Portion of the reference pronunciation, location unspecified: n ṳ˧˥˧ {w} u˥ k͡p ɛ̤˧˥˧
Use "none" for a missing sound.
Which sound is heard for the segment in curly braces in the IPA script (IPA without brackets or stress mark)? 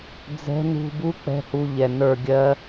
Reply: b